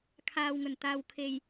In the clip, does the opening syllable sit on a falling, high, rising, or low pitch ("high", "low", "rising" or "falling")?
low